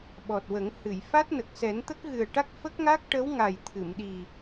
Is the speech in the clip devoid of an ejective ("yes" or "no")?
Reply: yes